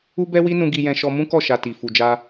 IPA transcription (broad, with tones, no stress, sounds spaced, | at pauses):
u˦ b ɛ˦ w i˦ n ũ˧ ɡ i˧ j ɛ̃˧ ʃ ɔ˧ m ũ˦ k ɔ˦˨ ʃ a˨ t i˨ f u˨ d͡ʒ a˧